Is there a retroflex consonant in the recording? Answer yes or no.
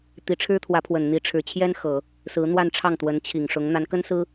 yes